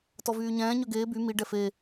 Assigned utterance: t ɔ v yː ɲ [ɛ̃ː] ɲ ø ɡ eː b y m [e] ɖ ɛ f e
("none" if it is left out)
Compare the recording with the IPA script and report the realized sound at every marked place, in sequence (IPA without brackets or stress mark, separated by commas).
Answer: ɛ̃ː, i